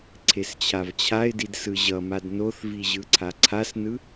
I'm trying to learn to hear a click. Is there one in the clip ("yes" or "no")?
yes